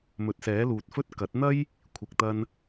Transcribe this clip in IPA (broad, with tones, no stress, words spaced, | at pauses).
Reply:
mɵ˨˥t̚sɛː˨˥luː˨t̚fɵ˥t̚ kɐ˨˥t̚n̪ɐ˥j | kʷʰɪ˧k̚t̪ɐ˥n